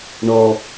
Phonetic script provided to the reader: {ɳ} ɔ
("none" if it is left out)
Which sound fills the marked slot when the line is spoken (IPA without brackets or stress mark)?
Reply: ɳ